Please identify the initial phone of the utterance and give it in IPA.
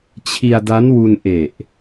t͡ɕʰ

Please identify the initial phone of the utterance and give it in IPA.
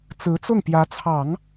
t͡s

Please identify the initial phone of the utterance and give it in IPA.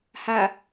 h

